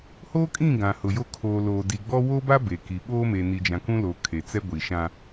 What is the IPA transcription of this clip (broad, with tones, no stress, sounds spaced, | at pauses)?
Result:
h oː˦ kʼ ĩ˦˨ ɡ ã˨ h ʊ˨ j o˦ kʰ oː˨ l oː˨ d i˨ ɡ͡b ɔ˦ w o˦ b a˦ b e˨ k i˨ ɓ oː˦ m e˨ n i˨ d͡ʒ ã˨ k ũ˦ l o˨ kʰ e˨ t͡s ɛ˦ ɡʷ i˨ ʃ ã˦